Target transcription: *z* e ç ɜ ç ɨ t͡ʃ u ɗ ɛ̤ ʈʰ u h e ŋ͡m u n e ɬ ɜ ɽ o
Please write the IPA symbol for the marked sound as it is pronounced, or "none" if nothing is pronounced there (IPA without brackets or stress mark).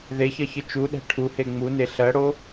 ð